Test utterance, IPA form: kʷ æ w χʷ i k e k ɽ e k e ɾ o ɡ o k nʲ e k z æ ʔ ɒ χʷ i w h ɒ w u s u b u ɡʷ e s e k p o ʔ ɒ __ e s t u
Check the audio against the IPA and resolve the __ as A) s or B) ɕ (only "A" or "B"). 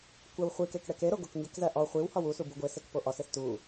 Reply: A